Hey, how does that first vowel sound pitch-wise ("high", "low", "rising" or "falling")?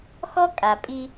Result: high